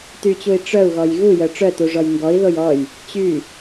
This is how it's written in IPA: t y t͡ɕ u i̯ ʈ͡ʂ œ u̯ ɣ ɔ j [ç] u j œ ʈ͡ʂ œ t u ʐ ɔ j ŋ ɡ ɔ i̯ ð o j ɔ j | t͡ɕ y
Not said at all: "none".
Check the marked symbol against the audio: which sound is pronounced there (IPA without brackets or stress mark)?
ɣ